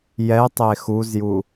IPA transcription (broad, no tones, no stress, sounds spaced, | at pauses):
j ɛ tˤ e x u z j u